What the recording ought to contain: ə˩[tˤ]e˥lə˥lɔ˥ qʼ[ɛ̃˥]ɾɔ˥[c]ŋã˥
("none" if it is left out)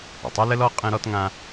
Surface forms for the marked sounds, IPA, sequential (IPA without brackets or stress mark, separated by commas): tˤ, ɛ̃˥, t